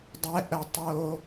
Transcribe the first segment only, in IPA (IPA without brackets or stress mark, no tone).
dˤ